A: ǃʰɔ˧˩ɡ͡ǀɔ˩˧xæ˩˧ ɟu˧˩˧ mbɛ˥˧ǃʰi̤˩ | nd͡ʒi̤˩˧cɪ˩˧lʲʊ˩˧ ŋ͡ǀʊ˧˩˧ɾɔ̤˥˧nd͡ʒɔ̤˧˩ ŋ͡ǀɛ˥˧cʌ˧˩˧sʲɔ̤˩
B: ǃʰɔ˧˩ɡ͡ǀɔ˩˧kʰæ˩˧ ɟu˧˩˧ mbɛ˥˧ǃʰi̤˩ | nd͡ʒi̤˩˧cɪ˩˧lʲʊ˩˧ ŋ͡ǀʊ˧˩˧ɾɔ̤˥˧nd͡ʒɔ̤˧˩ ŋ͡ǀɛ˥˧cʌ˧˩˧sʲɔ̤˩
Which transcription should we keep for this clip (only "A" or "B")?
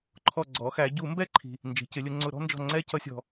A